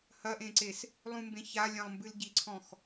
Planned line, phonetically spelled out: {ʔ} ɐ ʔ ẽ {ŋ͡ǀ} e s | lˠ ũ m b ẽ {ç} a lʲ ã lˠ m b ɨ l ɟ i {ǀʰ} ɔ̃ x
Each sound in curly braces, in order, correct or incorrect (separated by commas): incorrect, incorrect, correct, correct